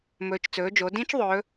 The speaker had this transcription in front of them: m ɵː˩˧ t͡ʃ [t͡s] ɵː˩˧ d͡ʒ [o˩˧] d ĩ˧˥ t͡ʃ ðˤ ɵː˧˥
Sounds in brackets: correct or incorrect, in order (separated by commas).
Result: correct, correct